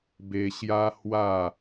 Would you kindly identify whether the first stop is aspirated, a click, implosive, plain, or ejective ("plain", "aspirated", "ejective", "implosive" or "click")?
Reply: plain